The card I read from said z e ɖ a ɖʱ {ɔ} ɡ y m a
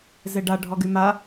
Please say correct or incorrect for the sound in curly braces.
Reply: correct